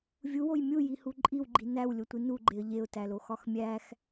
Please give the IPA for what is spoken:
vʲ u w o j mʲ u j i h u ǃʼ i w ɡ͡ǃ i n æ w lʲ o tʷ i n u ɡ͡ǃ e ə̯ ʎ e ʊ̯ t æ l o x ɒ x mʲ æ x

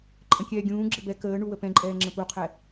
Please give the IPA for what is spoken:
ǃʼ ə̃ kʲ ɛː ɡʲ ũː ɡ͡ǁ ɘ b ɛ k əː ɳ u w ə p ɛ̃ ǃʼ ɛː ŋ͡ǁ ə̃ p u qʰ ɛ

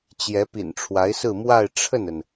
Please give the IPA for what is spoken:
t͡ɕ j ɛ˧˥ p ḭ˨˩ n ʈ͡ʂʰ w a˧˥ ɪ̯ s ɹ̩˥˧ m w a˥˧ ɪ̯ ʈ͡ʂʰ ə˥˩ n ə˩ n

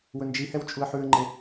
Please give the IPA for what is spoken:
w ɵ n d͡ʒ i h ɛ w t͡ʃʼ u ə̯ ħ ʉ ə̯ ŋ͡ǃ e

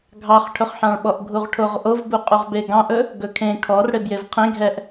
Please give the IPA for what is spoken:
ɡʱ ɑ χ ʈʰ ɵ χ ħ ɑ̃ ɭ ɓ ɔ ʔ ɡʱ u ʁ ʈʰ o ʁ ʔ o v b u qʼ u ʁ b e ɡ ɑ̃ ʔ ɵ | ɡ ɵ kʰ ẽ kʰ ɔ r ɽ e b j e v qʰ ẽ ɡʱ ɛ ʔ

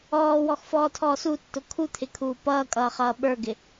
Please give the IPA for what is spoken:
ɔː w ɔ x f ɔː tʰ ɔː s u tː ʊ kʰ u t̪ʰ ɪ kʰ uː p ʌː kʼ ʌː χ ʌː ɓ ə˞ ɡ ɪ

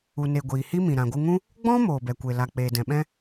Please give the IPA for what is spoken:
u˨ n e˨ ɡʷ iː˨ h i˦ m ĩ˨ ɾ ã˨ ɡʷ ɨ˧ ŋ ũ˦ | ɡ͡b ɔ̃˦ m oː˨ b ɛ˨ kʷ e˨ l a˨ k͡p eː˨ d ɛ̃˨ ɓ ɛ̃˦

